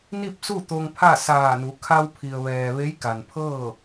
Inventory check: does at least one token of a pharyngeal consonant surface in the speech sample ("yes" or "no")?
no